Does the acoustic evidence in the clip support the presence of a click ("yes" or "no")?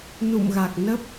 no